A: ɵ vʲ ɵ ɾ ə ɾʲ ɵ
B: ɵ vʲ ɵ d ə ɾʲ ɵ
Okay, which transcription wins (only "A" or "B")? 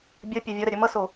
A